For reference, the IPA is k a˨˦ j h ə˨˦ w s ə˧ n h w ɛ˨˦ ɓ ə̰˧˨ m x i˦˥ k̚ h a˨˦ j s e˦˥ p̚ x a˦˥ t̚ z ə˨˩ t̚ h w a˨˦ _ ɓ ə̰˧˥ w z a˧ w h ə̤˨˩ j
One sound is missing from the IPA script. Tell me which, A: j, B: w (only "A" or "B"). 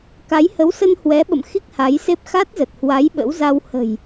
A